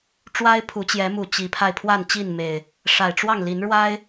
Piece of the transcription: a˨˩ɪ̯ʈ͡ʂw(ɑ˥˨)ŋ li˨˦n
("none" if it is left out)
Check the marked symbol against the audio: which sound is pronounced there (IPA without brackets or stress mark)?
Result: ɑ˥˨